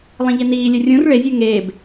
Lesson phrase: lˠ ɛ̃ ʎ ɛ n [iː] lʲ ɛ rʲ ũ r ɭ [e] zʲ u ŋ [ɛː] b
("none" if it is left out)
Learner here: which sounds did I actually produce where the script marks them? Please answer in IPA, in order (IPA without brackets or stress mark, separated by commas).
iː, e, eː